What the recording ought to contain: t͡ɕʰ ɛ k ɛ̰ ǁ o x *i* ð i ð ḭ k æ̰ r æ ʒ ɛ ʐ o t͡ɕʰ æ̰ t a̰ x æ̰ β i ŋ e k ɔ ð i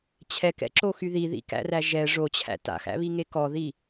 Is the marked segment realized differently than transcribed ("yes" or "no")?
yes